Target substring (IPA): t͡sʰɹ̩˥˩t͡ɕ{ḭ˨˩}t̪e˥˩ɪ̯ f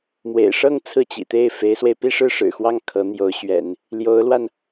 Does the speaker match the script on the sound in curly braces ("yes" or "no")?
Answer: yes